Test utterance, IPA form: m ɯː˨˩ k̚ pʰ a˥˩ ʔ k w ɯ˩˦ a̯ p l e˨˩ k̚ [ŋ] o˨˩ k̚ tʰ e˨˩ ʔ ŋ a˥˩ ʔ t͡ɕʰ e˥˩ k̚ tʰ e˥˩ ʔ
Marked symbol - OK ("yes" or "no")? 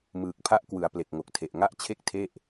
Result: yes